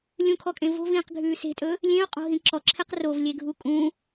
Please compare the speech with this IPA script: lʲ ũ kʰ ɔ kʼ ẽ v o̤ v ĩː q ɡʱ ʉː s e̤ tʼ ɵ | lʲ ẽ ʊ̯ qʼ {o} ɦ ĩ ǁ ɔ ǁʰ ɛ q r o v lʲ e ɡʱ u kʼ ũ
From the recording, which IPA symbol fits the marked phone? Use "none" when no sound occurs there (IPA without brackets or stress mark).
o̤